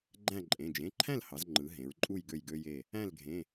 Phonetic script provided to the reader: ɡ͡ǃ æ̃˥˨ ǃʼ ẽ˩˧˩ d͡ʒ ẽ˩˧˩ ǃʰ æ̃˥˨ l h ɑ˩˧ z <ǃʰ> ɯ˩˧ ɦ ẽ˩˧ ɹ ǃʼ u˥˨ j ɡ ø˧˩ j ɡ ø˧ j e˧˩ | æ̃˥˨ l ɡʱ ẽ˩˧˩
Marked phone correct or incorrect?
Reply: incorrect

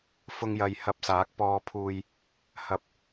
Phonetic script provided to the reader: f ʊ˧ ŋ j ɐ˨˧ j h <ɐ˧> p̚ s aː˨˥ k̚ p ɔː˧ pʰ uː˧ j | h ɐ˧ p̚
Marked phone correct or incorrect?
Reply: correct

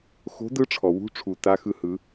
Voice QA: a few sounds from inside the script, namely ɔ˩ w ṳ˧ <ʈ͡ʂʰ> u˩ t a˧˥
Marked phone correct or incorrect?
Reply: correct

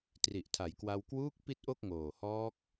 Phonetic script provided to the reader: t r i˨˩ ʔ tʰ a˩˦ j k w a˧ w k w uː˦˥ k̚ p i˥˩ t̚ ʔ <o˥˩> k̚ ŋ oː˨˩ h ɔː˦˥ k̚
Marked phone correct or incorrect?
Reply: correct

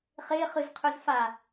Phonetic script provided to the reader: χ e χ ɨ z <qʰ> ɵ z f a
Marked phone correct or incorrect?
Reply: correct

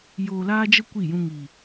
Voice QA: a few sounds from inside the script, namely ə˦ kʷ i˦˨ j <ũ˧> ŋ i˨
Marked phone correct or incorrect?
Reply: correct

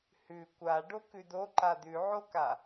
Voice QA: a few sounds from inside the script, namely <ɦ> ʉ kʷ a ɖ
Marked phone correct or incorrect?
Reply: incorrect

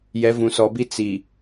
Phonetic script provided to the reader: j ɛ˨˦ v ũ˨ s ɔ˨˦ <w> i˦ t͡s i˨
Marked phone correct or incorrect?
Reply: incorrect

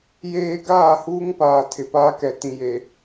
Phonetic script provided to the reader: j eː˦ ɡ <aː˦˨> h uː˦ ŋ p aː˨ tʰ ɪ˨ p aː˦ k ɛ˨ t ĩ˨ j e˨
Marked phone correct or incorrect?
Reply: correct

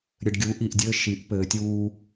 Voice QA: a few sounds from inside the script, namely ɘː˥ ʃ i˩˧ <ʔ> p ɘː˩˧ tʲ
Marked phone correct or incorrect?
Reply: correct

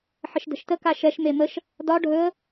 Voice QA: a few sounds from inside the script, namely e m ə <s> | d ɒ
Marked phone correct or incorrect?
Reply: incorrect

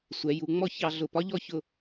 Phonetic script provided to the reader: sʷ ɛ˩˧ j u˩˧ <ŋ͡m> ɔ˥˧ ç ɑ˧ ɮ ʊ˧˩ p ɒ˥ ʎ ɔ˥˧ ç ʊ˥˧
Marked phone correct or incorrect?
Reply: correct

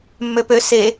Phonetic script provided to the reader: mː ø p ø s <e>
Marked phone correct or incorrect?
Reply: correct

